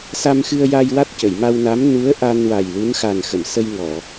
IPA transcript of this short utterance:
s a˧ m x ɨ˧ ə̯ j a˧ j w a˦˥ t̚ c ə˨˩˨ j m a˧ w n a˧˥ m n u˧˥ ə̯ ʔ a˧ n w a˨˩ j l u˧˥ n x a˨˩ n x ə˨˩˨ m s ə˧ j ŋ ɔ˨˩˨

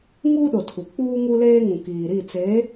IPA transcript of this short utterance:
ŋ uː˦ ɗ ʊ˨ tʰ u˨ k͡p uː˦ ŋ u˦ l eː˦ ŋ ũ˨ k iː˨ ɾ i˦˨ t͡s eː˨˦

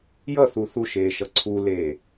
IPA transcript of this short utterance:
j ʌ θ u θ u ʃ eː ʃ ʌ ǀʰ u l eː

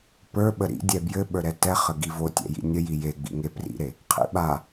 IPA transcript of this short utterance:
p ə˞ ɓ ə ɾ ḭ dʲ ɛ b j ɘ ɓ ə˞ ɾ ɛ t ɛ χ ə ɡ i v o tʲ ɛ̰ j ḭ nʲ ə j i j e ɡ͡b ḭ ŋ e p r ḭ ɾ e | qʰ ḭ ɓ a

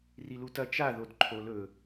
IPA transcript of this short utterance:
r i l u t ɐ t͡ʃ a ð o d ǃʰ o l ɵ

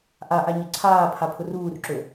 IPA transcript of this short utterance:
ʔ a ʔ a ɲ ə ǀʰ aː pʰ a pʰ ʊ r uː r ǁ ø

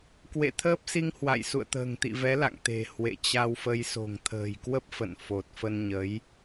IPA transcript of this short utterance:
k w ḛ˧˨ t̪ʰ əː˦˥ p̚ s i˧ ŋ h w a̰˧˨ j s ṵ˧˨ ə̯ t̪ ə̤ː˨˩ ŋ t̪ ḭ˧˨ v ɛ˨˦ l a̰˧˨ ŋ t̪ e̤˨˩ h w ḛ˧˨ t͡ɕ a˧ w f ə˧ j s o̤˨˩ ŋ t̪ʰ ə̤ː˨˩ j k w ə˦˥ p̚ f ə̰˧˨ n f o˨˩ t̚ f ə˧ n ɲ ə˨˦ j

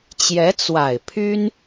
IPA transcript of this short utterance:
t͡ɕ j ɛ˧˥ t͡s w a˨˩ ɪ̯ pʰ y˥ n

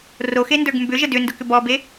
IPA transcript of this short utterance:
r o x e n d ə˞ ɡ m b ʏ ʒ ə d ʏ n d ʊ k ʏ b ɔ b e

